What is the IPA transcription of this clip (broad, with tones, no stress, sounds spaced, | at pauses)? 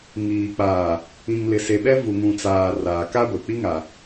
ŋ iː˨ k͡p aː˨ | ĩ˨ ŋ l ɪ˨ s e˨ ɓ ɛ˦ v u˨ ŋ ũ˨ t͡s aː˨ r aː˨ k a˦ ɡʷ e˨ k͡p i˦ ŋ a˨